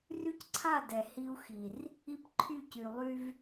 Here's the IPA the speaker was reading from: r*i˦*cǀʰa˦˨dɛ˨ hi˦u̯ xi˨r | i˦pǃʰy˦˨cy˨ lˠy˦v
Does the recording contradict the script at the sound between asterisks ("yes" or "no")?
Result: yes